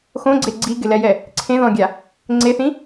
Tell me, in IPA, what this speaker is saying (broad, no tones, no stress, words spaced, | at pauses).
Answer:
xõɡ͡ǀe ɡ͡ǀiɡɪlɛjɛ | ǀʰẽðɔ̃ɡʲa | ŋ͡ǀeθĩ